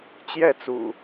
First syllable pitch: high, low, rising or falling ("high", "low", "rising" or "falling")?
falling